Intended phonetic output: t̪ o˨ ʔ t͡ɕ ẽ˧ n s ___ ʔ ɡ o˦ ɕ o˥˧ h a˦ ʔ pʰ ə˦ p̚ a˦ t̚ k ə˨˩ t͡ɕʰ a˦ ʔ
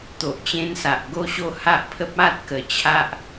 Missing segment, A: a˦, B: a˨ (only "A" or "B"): B